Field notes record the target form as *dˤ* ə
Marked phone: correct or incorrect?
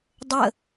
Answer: correct